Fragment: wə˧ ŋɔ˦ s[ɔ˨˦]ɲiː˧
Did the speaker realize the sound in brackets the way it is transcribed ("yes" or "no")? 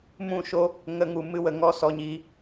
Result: no